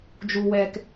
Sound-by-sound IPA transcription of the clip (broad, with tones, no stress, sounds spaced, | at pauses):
d͡ʒ u˨ w ɛ˨ k